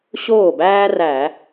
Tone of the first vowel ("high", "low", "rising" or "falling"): falling